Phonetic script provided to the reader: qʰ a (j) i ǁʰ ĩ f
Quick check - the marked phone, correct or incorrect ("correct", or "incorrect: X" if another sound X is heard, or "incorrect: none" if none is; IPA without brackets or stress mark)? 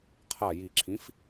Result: correct